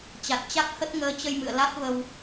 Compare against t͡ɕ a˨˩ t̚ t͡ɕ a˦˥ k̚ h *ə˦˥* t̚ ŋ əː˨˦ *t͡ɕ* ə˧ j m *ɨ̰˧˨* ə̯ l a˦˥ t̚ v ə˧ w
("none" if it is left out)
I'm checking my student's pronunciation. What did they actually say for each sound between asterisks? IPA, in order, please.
ə˦˥, t͡ɕ, ɨ̰˧˨

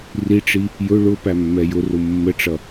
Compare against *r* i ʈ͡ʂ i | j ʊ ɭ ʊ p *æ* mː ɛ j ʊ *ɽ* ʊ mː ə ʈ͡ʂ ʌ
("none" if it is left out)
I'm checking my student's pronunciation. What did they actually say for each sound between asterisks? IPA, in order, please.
r, æ, r

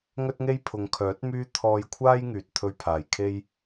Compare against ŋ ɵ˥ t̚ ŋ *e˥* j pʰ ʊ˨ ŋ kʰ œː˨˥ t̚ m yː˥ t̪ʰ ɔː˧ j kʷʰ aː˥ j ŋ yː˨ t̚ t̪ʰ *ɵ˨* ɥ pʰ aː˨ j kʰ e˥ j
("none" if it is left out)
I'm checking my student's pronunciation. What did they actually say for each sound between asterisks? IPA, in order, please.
e˥, ɵ˧

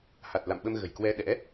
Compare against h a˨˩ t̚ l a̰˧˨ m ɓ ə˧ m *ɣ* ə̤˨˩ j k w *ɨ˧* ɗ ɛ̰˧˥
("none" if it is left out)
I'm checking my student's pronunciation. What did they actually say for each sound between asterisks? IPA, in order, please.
ɣ, ɛ˧

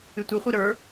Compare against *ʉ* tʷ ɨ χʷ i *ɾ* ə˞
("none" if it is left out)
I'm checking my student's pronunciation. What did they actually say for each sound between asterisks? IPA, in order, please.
ɨ, ɾ

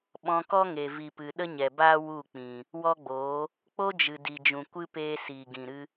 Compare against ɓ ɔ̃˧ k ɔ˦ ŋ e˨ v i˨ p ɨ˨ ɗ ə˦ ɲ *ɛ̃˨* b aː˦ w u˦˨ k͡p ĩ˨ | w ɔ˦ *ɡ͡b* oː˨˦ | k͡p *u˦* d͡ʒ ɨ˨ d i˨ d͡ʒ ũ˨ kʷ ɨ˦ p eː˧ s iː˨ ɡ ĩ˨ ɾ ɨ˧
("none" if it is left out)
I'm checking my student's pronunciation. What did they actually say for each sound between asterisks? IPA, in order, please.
ɛ˨, ɡ͡b, o˦

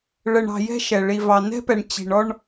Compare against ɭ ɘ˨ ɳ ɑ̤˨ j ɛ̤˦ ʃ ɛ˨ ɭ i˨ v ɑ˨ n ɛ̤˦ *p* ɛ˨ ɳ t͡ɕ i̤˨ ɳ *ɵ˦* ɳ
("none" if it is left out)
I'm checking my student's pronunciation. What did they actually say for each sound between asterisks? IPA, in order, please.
p, ɔ˦

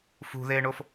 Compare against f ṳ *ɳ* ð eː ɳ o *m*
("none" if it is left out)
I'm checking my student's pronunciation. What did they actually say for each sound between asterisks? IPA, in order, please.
none, f

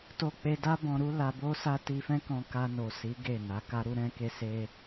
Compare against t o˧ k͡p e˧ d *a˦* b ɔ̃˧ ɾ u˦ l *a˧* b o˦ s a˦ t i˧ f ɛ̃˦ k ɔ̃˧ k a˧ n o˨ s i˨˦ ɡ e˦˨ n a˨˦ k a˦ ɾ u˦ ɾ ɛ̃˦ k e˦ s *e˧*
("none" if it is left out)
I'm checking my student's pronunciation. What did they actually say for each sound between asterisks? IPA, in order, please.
a˦, a˧, e˦

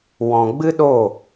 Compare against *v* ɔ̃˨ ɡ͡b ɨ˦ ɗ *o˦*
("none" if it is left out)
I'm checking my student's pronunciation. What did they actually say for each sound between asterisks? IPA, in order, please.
w, o˦˨

